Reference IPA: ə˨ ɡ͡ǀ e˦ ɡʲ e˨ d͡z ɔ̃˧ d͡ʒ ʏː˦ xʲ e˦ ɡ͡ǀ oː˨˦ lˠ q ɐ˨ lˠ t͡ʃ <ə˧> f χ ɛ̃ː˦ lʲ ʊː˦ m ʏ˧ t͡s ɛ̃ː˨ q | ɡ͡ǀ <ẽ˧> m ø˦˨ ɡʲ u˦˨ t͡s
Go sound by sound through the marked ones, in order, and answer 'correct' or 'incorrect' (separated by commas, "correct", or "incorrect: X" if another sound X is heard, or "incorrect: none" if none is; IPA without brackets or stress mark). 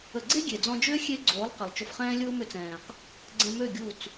incorrect: ʊ˧, incorrect: ɛ̃˧